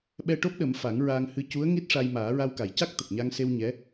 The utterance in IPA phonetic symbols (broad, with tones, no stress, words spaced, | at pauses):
ɓɛ˧ʈo˦˥p̚ɗə˨˩˦m fa˨˩˦ŋɹaː˧ŋhɨ˧ cu˧˥ə̯ŋi˦˥t̚ʂa˧jmaː˨˩˦ ɹa˧wka˨˩jca˦˥k̚ t̪ə˨˩k̚ɲa˧ŋse˧w ɲɛ˧˥